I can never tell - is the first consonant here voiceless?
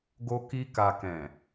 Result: no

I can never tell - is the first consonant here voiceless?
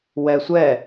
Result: no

